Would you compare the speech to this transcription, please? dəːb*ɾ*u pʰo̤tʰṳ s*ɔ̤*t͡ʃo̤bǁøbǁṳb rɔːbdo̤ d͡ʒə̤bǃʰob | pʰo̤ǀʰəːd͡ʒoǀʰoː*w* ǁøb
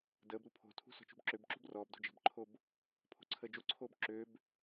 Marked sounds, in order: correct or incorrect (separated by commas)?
correct, correct, incorrect